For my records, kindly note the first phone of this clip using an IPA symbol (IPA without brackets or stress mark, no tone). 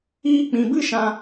iː